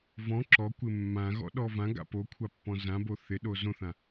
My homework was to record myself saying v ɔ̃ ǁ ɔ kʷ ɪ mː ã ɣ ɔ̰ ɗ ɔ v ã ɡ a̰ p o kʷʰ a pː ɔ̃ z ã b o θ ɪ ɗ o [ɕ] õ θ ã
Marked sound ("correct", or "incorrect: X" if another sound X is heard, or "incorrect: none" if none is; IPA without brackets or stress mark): incorrect: z